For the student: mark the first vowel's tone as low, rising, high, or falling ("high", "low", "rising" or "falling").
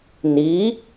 rising